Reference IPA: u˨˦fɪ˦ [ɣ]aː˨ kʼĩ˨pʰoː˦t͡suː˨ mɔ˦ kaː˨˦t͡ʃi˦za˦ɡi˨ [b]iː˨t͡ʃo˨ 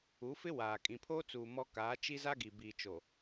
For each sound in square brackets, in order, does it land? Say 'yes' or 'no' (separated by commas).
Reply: no, yes